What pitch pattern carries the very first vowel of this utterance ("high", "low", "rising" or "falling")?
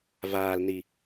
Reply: low